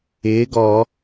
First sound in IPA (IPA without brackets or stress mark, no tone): ɪː